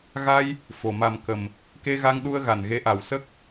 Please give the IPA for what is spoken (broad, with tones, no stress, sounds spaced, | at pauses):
ɣ a˧ j | f o˨˩ m a˨˩ m k ə˨˩ m | k e˧ ɣ a˧ ŋ ɗ u˧ ə̯ ɣ a˨˩ n ɣ e˧˥ ʔ a˨˩ w s ə˦˥ k̚